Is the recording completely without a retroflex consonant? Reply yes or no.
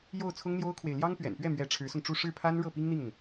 no